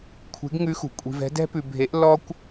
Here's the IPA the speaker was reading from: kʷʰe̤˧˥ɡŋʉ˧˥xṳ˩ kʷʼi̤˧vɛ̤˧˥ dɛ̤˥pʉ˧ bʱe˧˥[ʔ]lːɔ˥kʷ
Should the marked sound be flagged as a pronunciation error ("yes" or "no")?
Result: no